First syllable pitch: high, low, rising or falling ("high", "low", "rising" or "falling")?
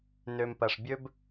low